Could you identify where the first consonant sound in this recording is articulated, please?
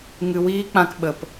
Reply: velar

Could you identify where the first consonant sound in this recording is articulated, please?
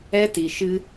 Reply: alveolar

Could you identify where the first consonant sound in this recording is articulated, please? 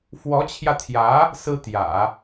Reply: labial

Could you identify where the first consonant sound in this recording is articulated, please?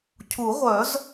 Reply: palatal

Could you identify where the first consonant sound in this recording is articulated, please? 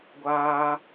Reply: velar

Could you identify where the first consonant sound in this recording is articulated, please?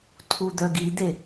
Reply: alveolar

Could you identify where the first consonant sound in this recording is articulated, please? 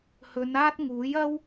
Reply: glottal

